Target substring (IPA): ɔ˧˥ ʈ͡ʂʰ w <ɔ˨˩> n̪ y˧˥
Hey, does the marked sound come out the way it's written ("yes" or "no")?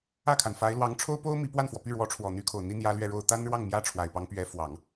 yes